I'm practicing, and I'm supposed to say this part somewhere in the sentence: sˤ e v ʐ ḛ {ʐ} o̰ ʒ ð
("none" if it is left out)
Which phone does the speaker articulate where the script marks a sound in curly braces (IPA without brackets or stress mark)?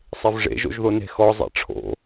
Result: ʒ